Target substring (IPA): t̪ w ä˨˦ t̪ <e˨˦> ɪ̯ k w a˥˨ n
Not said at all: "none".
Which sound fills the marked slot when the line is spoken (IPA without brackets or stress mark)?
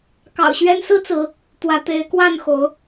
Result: e˨˦